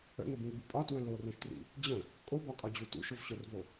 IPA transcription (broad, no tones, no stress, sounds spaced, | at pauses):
ə̰ n ə b ĩ l b u pʼ ɒ t w ə̃ l o r õ ʃ t r ḭ | d͡ʑ ə̃ | kʼ o b ɒ kʼ ɒ d͡ʑ u t ṵ ʃ o v ɕ o r v o